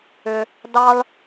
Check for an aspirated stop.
absent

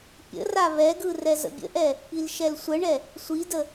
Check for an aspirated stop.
absent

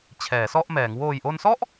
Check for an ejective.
absent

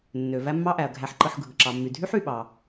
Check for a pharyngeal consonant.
present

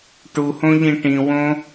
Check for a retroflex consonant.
present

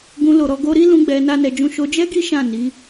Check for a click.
absent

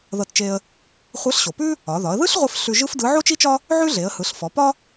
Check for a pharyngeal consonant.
present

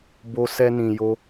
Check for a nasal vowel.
present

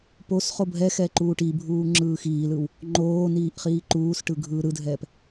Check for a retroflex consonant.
present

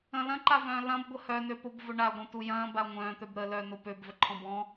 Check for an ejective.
absent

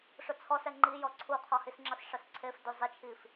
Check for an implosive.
absent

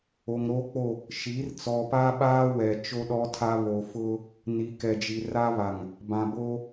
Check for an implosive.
present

